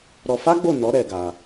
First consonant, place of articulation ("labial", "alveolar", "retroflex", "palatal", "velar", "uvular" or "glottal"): alveolar